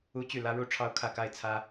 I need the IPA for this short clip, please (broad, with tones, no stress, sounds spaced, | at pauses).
u˥ t͡ɕ y˥˩ l ä˥ ɻ u˥ ʈ͡ʂʰ ɑ˥˧ ʊ̯ kʰ ä˥˧ k a˥˩ ɪ̯ t͡sʰ ä˥